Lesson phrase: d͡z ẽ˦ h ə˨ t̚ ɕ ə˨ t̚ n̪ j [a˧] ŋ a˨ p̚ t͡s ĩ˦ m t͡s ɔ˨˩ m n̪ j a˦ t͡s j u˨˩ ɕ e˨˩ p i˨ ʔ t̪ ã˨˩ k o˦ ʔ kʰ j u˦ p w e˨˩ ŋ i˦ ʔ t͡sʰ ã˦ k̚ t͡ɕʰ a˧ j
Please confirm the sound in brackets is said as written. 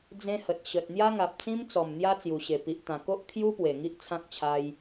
no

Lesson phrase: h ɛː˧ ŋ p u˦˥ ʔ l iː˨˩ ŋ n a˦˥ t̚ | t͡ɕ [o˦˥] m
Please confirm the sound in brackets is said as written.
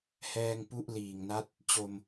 no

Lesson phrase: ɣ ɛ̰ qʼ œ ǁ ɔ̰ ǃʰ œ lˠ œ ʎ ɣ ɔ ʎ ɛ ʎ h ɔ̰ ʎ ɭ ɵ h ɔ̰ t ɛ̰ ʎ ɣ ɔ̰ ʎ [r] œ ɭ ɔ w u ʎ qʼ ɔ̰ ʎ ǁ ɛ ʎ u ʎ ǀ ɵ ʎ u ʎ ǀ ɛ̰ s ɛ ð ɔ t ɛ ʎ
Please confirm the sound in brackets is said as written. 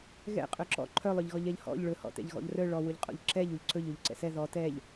yes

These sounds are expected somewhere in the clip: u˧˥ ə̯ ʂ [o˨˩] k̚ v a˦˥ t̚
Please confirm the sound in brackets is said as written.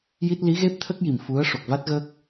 yes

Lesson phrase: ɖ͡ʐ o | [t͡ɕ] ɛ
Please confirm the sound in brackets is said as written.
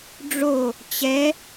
yes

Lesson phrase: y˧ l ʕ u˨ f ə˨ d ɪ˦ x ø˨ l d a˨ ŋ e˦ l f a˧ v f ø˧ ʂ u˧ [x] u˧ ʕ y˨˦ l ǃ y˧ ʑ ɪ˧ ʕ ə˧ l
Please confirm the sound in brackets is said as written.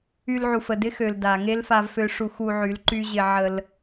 yes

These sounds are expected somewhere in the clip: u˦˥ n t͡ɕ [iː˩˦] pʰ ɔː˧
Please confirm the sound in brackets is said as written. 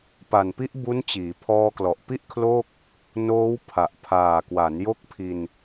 yes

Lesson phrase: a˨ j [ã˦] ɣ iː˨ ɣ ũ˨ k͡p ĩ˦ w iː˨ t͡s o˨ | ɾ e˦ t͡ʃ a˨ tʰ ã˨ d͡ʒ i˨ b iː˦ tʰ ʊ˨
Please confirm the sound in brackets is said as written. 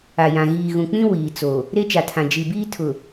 no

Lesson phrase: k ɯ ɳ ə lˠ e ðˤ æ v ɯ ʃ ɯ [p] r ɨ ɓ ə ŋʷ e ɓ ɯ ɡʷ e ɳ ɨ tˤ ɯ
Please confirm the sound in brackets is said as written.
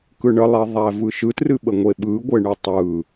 no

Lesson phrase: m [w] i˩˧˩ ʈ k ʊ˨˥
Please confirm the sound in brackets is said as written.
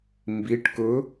no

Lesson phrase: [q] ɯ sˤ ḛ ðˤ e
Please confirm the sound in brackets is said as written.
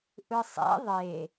no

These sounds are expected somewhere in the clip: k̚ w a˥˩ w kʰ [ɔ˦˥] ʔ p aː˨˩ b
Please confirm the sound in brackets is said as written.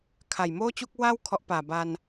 yes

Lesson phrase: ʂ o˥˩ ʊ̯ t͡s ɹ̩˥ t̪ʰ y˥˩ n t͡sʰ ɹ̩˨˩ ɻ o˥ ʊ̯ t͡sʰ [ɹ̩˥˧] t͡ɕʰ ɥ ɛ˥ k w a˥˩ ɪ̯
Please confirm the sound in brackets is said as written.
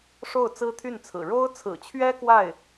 no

